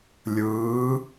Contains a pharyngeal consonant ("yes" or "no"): no